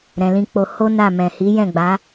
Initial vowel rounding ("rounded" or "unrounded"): unrounded